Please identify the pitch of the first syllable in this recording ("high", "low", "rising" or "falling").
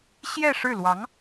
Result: falling